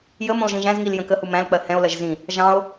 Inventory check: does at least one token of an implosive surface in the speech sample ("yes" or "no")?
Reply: no